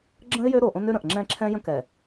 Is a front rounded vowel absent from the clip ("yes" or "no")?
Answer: no